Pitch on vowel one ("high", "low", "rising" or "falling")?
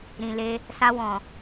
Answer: low